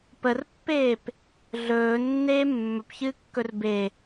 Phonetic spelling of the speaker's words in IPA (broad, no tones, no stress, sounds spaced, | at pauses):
p ə r pː eː p | ɮ ɵː nː eː mː ɵ p ç ɨː kː ɵ r b e